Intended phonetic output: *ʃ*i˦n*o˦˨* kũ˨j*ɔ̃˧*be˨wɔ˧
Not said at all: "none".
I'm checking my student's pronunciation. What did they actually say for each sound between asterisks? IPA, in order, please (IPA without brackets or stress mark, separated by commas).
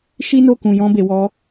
ʃ, o˦˨, ɔ̃˧